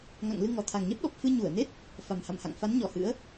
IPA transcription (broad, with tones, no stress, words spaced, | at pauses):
ŋa̰˧˨ŋlɨ˧ŋɔ˧˩ t̪ʰa˨˩ŋɲɛ˦˥p̚ɗɔ˨˩p̚ fɨ˧ɲu˧˩ə̯ne˦˥t̚ | fa˨˩mha̰˧˨mha̰˧˨ŋ fa˨˦nɲɔ˧˩hɨ̰˧˥ə̯